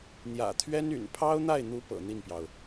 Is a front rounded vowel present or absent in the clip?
present